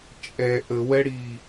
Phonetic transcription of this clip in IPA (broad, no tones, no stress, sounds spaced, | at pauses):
t͡ʃʼ ɛ ʔ ə w ɛ ɽ i